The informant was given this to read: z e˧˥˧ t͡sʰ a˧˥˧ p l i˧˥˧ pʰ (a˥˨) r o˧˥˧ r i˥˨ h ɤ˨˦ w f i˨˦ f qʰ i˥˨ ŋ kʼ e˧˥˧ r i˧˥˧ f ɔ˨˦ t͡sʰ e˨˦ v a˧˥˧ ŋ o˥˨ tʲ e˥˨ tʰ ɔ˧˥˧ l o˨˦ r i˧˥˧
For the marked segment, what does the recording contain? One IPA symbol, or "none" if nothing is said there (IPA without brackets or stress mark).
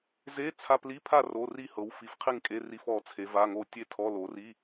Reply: a˥˨